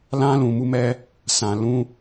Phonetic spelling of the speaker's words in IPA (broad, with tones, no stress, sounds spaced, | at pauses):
l ã˦ l ũ˧ m u˦ m ɛ˦ | s ã˧ l ũ˦